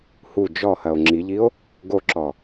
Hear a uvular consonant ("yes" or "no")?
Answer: no